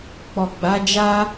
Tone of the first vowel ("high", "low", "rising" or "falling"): low